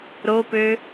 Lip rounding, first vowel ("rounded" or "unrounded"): rounded